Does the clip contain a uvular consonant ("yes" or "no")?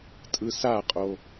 yes